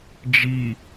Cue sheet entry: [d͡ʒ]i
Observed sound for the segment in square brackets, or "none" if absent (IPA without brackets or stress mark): d͡ʒ